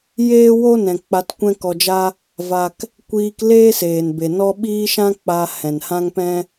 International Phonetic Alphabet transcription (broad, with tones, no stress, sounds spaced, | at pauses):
j eː˦ w o˦ n ɛ̃˨ k͡p a˧ t kʷ ɛ̃˦ k ɔ˧ d͡ʒ a˦ | v a˧ k | kʷ iː˧ k l eː˦ s eː˨ n b e˨ n ɔ˦ ɓ iː˦ ʃ ã˦ k͡p a˧ h ɛ̃˨ n h ã˦ ŋ p ɛ̃˦